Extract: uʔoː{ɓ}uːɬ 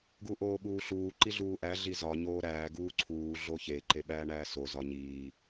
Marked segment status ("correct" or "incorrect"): correct